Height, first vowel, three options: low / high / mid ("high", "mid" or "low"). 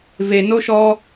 mid